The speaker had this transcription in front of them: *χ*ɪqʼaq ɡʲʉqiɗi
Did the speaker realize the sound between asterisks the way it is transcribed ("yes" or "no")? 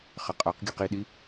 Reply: yes